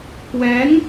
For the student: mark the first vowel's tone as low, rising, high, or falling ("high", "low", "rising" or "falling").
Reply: rising